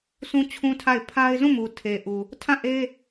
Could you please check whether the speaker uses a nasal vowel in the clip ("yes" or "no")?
yes